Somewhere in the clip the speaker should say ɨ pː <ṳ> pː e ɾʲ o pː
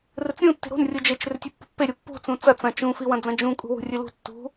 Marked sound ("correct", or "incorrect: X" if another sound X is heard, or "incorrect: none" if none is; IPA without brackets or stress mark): correct